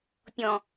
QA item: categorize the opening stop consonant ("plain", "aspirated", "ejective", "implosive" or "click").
plain